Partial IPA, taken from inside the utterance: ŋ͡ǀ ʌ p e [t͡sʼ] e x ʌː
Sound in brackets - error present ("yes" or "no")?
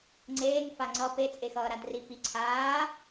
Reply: no